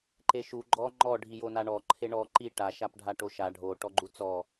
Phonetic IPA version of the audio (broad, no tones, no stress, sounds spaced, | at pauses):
ǃ e ʃ u ɡ͡ǃ ɔ ŋ͡ǃ ɔ ɖʱ i j o n a ɳ ɔ ǃʰ e ɳ ɔ ǃ i ʈ a ʃ a p ɖʱ a ʈ o ʃ a ɖʱ o ʈ ɔ ɡ͡ǃ u t͡s ɔ